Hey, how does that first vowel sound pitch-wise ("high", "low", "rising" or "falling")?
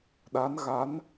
rising